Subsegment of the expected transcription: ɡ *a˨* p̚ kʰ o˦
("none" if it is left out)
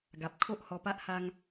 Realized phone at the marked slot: a˨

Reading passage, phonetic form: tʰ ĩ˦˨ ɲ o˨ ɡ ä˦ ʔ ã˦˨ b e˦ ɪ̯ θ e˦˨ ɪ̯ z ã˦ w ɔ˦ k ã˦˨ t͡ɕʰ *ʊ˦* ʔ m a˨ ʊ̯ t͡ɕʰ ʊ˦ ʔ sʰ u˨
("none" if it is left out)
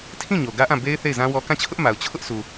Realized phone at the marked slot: ʊ˦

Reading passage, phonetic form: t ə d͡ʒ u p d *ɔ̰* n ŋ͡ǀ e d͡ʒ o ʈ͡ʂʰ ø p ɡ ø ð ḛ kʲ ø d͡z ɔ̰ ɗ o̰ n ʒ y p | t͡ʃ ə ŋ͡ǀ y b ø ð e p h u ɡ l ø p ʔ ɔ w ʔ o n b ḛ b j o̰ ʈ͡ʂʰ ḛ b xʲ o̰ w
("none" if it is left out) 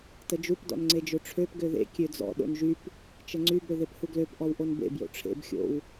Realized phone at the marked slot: ɔ̰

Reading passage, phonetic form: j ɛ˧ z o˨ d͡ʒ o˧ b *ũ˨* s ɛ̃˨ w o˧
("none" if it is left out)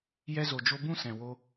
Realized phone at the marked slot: ũ˦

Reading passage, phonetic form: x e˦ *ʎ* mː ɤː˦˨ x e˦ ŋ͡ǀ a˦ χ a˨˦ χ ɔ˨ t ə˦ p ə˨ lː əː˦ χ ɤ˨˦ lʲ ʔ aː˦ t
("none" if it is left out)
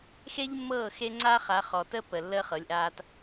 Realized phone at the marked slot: ʎ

